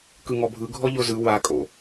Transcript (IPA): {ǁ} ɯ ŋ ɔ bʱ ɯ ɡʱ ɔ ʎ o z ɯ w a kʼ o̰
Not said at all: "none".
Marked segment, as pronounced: k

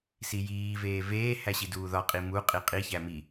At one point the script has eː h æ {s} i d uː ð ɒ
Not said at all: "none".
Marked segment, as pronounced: ɕ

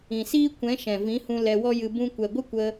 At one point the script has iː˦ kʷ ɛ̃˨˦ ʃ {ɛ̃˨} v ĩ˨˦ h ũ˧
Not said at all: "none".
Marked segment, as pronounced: ɛ̃˨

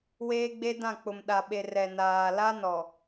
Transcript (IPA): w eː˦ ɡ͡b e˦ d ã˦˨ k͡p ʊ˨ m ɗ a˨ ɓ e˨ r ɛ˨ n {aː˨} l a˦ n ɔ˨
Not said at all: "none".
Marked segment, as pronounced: aː˨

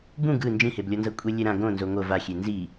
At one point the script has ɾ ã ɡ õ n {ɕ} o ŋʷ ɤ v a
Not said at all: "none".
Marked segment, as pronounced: z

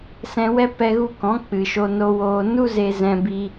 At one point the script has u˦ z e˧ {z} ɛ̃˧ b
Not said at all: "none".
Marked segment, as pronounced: z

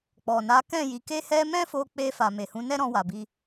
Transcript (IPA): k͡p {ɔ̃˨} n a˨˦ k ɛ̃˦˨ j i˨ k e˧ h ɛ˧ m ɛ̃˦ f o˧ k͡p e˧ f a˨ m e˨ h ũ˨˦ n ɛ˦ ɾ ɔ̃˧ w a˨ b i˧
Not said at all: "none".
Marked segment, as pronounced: ɔ˨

